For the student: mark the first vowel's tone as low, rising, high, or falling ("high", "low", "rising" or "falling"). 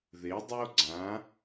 rising